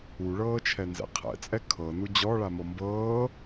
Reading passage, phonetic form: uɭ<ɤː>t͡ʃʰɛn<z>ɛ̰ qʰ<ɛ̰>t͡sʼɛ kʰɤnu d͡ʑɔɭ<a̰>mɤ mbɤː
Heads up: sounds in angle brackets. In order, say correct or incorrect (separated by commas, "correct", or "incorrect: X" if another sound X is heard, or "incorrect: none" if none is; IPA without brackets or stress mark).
correct, correct, correct, incorrect: a